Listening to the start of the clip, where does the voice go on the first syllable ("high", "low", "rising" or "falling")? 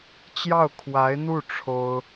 falling